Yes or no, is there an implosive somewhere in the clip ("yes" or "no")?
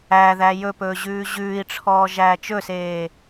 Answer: no